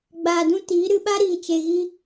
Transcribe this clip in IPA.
ɡ͡b aː˧ d ũ˦ t iː˨˦ ɾ ɨ˧ ɓ a˦ ɾ iː˧ t͡ʃ e˧ ɣ i˦

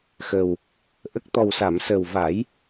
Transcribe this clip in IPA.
x ə˨˩ w | ʔ ə˦˥ k̚ t̪ ɔ˨˩ w s a˨˩˨ m s əː˨˩ w v a˨˩˦ j

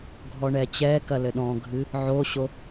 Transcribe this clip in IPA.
ɡʱ ɔ ɳ ɛ t͡ɕ ɛ k ɐ l ɘ ɗ ɔ̃ ɡʱ ɨ | ʕ o ɕ o

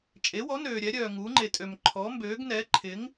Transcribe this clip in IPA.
t͡ʃʼ e˩˥ w ɔ˩˥ n øː˨ ɾʲ ɛ˩˥ ɾʲ œː˨ ŋ uː˩˥ ŋ͡ǃ e˨ tʼ ø˨ m ǃʰ ɔ˩˥ m b ø˩˥ ɡ n ɛ˩˥ ǃʰ ɪ˩˥ ŋ

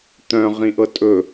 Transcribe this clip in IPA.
t̪ œ̃ ʁ ĩ ʔ ɤ tʼ ɵ

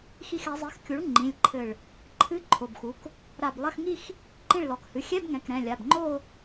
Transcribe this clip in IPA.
x i˧˩ x ɛ˩˧ zˤ i˩˥ x kʲ u˩˥ ɭ ŋ͡ǃ ĩ˩˧˩ lʲ ǃʰ ɘ˧˩ ɭ | ǃʰ ɨ˧˥˧ ǃʰ o˩˧˩ b x u˩˥ k | ɾ a˧˩ b lˠ ɐ˧˥˧ x ŋ i˥˧ x | ǃ ĩ˧˩ ɭ l ɔ˩˧ k h ɨ˩˧˩ xʲ ɛ˧˥˧ b ŋ ɛ̃˩˧˩ k ɾ ɛ̃˩˧˩ lʲ a˩˧˩ b ŋ͡ǃ o˥˧

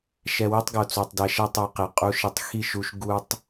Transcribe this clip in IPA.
ʃ ɛ˧ w e˦ tˤ ɡ o˨ t͡s o˨ tˤ d ɛ˧ ʃ ɛ˦ tˤ o˧ q e˨ qʼ u˧ ʃ i˨ tˤ x i˦˨ ʃ u˧ ʃ ɡ u˧ tˤ

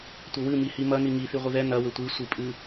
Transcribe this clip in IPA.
tʷ ɘ w ɨ m i h i m ɐ n i ŋ i θ i ʁʷ ɨ ð ɛ n ɐ w ɘ tʷ i sʷ i pʼ ɨ

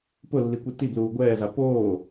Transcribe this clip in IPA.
p ʊ lː i kʷ i t i b l uː ɡʷ ɛː z a p oː

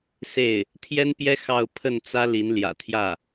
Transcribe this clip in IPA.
s e˥˩ ɪ̯ | t̪ʰ j ɛ˥ n p j ɛ˥ x ɑ˥˧ ʊ̯ pʰ ə˥˩ n t͡s ä˥ l i˧˥ n l j ä̰˨˩ t̪ʰ j ä˥˩

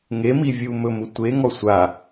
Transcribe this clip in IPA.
ŋ e m i vʲ u m ɵ m u tʷ e ŋ ɔ sʷ a

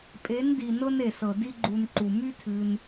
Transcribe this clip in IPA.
pʼ e˨˦ n d i˨ n ɤ˧ n e˨ s ɤ˨ d i˦ ɡ͡ǃ u˧ n ǃ u˨ m y˦ tʰ ɨ˧ n

